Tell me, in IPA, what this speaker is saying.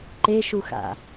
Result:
ǃeʃuxa̰

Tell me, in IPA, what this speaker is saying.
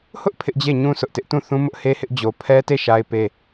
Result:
hʊ˦ʔ pʰɪ˦ʔd͡ʑe˦˨ɲũ˦ sʰʊ˦ʔtɪ˦ʔ tũ˦˨θũ˦mʊ˦ʔ he˦hɪ˦ʔ d͡ʑo˦ pʰɛ˦te˦˨ ʃa˦ɪ̯pe˦

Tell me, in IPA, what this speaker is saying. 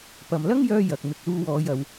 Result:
pɐ˨m lɐ˥ŋjœː˧ jɐ˨k̚ mɪ˨k̚luː˧wɔː˨˧j ɐ˨˧w

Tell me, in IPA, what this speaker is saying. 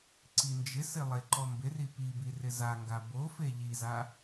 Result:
ǀind͡ʒɪsɪ lˠeǃɔmbɪri pibi rɪzaŋɡa bofe ʎiza

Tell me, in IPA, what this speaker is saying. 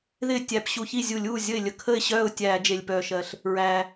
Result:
ðɪː˥˩ tʲæ˧˩˧pɕu˧˩˧çi˥˩ zʲu˧˩˧lʲuː˥˩ zʲə˥˩ɪ̯lʲə˥˩ kʰə˥˩ɪ̯ɕœː˥˩ʊ̯ tʲæː˧˩˧d͡ʒe˩lʲpœː˩ʃɜ˩ɬ | ɹæː˩

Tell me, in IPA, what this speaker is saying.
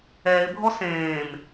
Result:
ɛːɪ̯bʱɔ sẽːm

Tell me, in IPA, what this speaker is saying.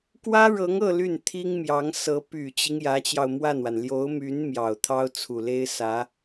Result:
kwä˥ɻɤ˧˥ŋɤ˥˧ ly˥˩nt̪ʰi˥ŋmjɑ˧˥ŋsɤ˧˥ py˨˩t͡ɕi˦ŋ jä˧˥t͡ɕjɑ˧ʊ̯mwa˥˩nwa˩n ljo˧˥ʊ̯my˧˥n mjɑ˨˩ʊ̯t̪ʰɑ˥ʊ̯ t͡sʰu˨˩le˥ɪ̯sä˧˥

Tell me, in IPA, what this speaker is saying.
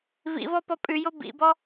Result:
vḭvɔ pɔpʼʉjo bḭbɔ

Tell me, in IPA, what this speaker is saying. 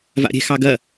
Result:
va̰ɾʲɛ̤xɑɡɐ

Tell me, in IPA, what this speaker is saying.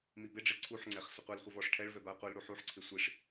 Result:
mibɪɖ͡ʐe ǀʰuħŋ͡ǀɛχ sʊqʷɛlχʷɪ vɔʂʈʰɛɭvɛ baqʷɪlɽu ħuħǀʰɪ sʷiʂ

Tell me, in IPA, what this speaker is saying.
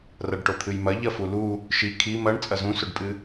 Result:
rɐɖʈot̪ʰɨjmɐ ʎɐfulu | ʃi kʰi mɐɳ t͡sʼɐzũsɵɖpʼɨ

